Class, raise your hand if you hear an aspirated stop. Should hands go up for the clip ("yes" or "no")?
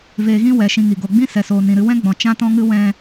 no